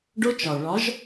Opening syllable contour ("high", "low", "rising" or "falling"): high